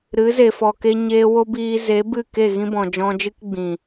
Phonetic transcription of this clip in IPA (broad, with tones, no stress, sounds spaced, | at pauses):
ɾ ɨ˨˦ z e˨ f ɔ˨ k e˦ ɲ eː˧ w o˦ b iː˧ z e˨˦ b ɨ˦˨ k e˦˨ ɣ ĩ˦ b ɔ̃˨ d͡ʒ ɔ̃˧ d͡ʒ ɨ˦ k ɡ͡b ĩ˨